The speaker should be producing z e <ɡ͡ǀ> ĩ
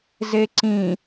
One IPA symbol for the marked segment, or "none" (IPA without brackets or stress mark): ǀ